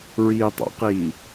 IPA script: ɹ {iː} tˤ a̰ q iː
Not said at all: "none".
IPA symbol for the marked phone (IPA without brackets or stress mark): iː